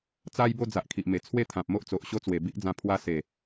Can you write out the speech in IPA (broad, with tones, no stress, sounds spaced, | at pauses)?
t͡s a˦ j b o˦ d͡z a˨ ʔ kʰ i˨ ʔ m e˨˩ t͡sʰ w e˥˧ t̪ʰ ã˨ p̚ m o˦ ʔ t͡s o˨ ʔ ɕ o˦ t͡s w e˨˩ b i˦ ʔ d͡z ã˧ pʰ w a˧ s e˨˩